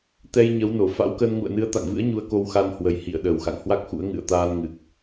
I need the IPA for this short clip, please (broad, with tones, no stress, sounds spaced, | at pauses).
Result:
t̪ ɛ˧ j ɲ ə˨˦ w n o˧˩ f a̰˧˥ w k ə˧ n ŋ ṵ˧˨ ə̯ n ɨ˨˦ ə̯ t̪ a̰˧˨ ŋ v ɨ̰˧˥ ə̯ ɲ u˧ ə̯ k o˧ w x a˧ n h w ə˨˩ j h ḭ˧˨ ə̯ ɗ əː˨˩ w x a̰˧˨ ŋ h w a˦˥ k̚ x ṵ˧˥ ə̯ ŋ ɨ̰˧˨ ə̯ t̪ aː˧ n ŋ ɨ˨˩ k̚